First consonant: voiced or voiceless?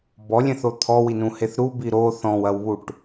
voiced